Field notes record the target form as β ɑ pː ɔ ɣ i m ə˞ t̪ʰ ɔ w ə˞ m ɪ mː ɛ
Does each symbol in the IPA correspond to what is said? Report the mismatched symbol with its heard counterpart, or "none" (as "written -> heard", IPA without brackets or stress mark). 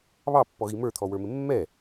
none